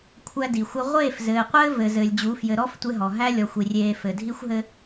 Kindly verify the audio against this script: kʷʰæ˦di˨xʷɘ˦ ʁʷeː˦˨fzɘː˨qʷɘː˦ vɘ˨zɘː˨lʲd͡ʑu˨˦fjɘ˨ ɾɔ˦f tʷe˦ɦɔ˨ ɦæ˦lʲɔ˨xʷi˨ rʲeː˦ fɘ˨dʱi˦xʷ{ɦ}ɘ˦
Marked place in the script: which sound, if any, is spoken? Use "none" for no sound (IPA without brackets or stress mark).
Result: ɦ